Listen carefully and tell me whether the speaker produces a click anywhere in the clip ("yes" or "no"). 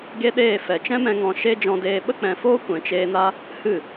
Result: no